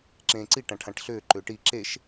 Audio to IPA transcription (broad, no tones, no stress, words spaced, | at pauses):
ǁẽːǀi ʈãʈʰãʈɬʏː ǃʏːʈi ǁeʃ